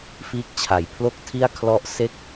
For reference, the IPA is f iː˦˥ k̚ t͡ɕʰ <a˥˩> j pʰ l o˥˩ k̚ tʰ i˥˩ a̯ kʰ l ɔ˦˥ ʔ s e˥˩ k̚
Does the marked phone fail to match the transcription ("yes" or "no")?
yes